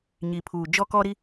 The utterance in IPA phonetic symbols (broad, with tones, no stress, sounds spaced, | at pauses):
ɲ i˨ pʰ uː˨ d͡ʒ ɔ˦ k ɔ˦ ɾ i˦